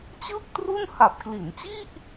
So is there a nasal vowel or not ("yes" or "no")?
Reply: no